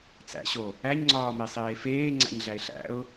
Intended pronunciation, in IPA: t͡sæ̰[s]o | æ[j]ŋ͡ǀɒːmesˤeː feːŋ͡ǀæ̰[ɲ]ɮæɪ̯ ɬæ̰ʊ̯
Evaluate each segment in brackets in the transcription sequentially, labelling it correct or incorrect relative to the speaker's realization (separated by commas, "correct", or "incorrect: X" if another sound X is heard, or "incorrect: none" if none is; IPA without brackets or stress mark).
incorrect: ɕ, incorrect: ɲ, correct